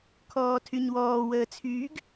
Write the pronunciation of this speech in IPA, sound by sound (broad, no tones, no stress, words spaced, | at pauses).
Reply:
kʰɔːtʰyɲwɔː wəːt͡sʰyːɡ